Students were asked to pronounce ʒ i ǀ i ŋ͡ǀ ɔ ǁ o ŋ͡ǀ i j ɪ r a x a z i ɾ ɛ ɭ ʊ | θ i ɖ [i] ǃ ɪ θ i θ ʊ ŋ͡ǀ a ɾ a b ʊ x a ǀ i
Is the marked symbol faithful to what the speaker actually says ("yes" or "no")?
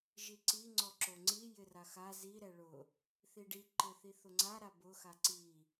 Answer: yes